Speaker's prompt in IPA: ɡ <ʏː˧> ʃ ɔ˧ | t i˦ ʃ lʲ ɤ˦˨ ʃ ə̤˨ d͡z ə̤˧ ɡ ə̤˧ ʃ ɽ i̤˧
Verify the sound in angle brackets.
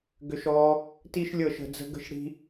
incorrect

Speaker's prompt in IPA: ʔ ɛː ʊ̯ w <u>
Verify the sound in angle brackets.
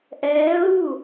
correct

